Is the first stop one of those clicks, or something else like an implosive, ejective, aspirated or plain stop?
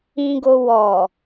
plain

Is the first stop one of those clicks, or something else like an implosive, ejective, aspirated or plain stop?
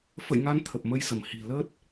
aspirated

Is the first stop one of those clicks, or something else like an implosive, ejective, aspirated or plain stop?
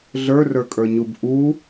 ejective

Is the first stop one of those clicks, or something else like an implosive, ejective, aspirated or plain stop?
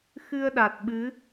implosive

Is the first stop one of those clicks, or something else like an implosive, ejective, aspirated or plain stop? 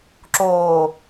click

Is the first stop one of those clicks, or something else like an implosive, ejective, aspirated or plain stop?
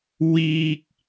plain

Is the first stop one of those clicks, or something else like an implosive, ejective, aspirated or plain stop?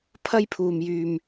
aspirated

